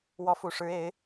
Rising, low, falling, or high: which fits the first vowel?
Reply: rising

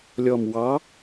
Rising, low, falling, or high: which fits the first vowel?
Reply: low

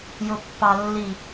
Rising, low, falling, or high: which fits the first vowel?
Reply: low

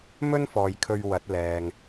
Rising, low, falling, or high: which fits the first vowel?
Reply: high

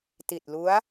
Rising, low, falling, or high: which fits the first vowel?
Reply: low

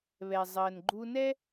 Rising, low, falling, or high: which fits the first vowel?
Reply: low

